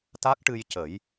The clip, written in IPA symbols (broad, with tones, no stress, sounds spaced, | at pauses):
t̪ a˦˥ k̚ ʈ ɨ˧ j c ə˨˩˦ j